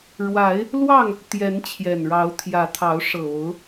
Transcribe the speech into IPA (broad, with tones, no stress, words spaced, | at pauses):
ɻwa˨˦ɪ̯ | lwɑ˥˨ŋ | t̪jɛ˨˦nt͡ɕʰjɛ˨˩nɻɑ˨˦ʊ̯t̪ʰjä˨˦ t̪ʰɑ˨˦ʊ̯ʂɤ˨˩o˨˦ʊ̯